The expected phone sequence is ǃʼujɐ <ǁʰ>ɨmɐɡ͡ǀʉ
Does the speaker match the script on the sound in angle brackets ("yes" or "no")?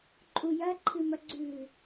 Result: no